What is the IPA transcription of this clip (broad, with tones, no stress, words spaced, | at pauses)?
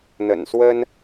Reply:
n̪ə̰˨˩nswə˥n